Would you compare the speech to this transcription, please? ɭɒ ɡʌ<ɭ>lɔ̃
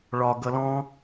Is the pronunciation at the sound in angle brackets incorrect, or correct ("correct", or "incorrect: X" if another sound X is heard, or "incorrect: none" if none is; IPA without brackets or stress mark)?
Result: incorrect: none